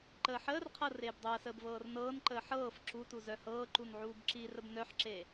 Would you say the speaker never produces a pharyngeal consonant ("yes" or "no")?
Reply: no